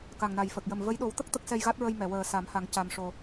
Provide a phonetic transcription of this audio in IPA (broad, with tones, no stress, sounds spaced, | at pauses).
k a˨˩ ŋ n a˨˩ j f ə˨˩ k̚ j ə˨˩ m v ə˧˥ j ɗ o˨˩˦ w t̪ ə˦˥ k̚ t̪ ə˦˥ k̚ s ɛ˧ j ɣ a˦˥ t̚ ɹ ə˧ j m ɛ˨˩˨ w əː˨˩ s a˨˩˦ m h a˨˩˦ ŋ c a˧ m ʂ o˧